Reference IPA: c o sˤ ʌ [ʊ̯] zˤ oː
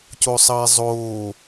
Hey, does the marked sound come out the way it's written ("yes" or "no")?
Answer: no